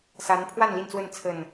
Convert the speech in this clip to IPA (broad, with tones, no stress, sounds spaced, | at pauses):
s a˨˦ n pʰ w a˥˨ n l i˥˨ n t͡s w ə˥˨ n t͡sʰ ə˨˩ n